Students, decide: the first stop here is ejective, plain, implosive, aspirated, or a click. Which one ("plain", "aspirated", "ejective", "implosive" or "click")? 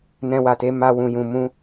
plain